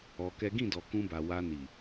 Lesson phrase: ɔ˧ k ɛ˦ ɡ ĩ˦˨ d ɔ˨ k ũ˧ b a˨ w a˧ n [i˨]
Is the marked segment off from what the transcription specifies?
no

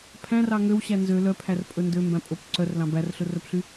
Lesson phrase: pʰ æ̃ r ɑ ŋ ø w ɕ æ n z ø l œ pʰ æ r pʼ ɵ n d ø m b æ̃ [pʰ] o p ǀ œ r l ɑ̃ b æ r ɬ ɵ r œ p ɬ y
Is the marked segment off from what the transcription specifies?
yes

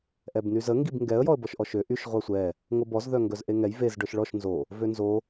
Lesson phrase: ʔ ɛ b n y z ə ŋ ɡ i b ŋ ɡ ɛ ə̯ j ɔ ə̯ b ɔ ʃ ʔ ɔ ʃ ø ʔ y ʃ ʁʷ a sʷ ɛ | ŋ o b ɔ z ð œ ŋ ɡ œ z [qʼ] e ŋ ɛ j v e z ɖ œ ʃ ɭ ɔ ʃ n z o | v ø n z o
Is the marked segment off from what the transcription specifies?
yes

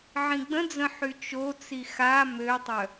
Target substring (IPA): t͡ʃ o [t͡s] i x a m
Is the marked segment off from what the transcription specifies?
no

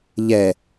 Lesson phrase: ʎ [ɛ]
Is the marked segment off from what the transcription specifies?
no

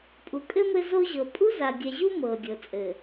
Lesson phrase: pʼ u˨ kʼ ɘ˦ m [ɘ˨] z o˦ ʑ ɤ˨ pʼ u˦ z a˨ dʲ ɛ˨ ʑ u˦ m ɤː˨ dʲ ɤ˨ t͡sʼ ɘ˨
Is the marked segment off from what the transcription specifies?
yes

